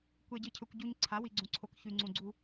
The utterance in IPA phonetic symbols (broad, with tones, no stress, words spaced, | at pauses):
kʷe˨ɟɨ˨cʰɵ˨kʷ ɟu˨ɲ ǀʰa˨˦wi˨ɡ͡ǀũ˨ǀʰo˨k çʉ˨ŋ͡ǀũ˨ɡ͡ǀu˦